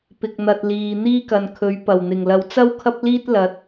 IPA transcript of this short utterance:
pɪ˨k̚n̪ɐ˨t̚ liː˨ n̪iː˥kɐ˨nkʰɵ˨˥ɥ pɐ˨˩wn̪ɪ˨˩ŋ lɐ˨wt͡sɐ˥w kʰɐ˥p̚liː˥t̚ lɐ˨˥t̚

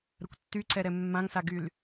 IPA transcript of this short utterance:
ɾəkʷtːyǀɛɾɛ mːãŋsaɡyl

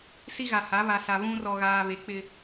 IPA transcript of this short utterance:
si˦ɣa˨ha˨˦ βa˨sa˨ βũ˦ rɔ˨ɣaː˨ βe˨˦k͡pɪ˦

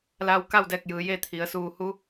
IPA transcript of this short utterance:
la˧w ka˥˨wdɛː˧˩k̚jɯː˩ je˥˨t̪ʰi˩˧ə̯ suː˧˩hu˧˥

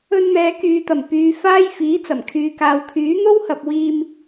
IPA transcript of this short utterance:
ɵ˧nn̪ɛː˨˧kyː˨t̪ɐ˨˩m pyː˨faː˧j fiː˨˥t͡sɐ˨˩mkʰyː˨kaː˨w kʰyː˨˥n̪o˥whɐ˨p̚ wiː˧m

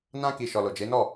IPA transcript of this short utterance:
nã˧ki˨ ʃɔ˨lo˨d͡ʒe˨˦nɔ˦˨

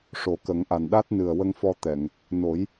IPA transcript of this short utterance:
ʂo˨˩˦kə˨˩˦ŋʔa˨˩n ɗa˦˥t̚nɨ˨˩ə̯wə˧ŋfɔ˧ t̪ɛ˨˩˨ŋ | no˨˩˦j

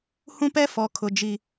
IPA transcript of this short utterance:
hũ˦pɛ˦ fɔ˨˦kʰʊ˨ d͡ʒi˨

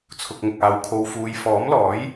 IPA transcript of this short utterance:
t͡sʰʊ˨k̚ŋʊ˨k̚aː˨˧w kʰo˧w fuː˧j fɔː˨˥mlɔː˨˥j

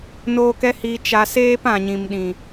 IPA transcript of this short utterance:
noː˧kɛ˦ hi˧t͡ʃa˧seː˦p ã˨ɲĩ˨mɗĩ˨

